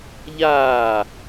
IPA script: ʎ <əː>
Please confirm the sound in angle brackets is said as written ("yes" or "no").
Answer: no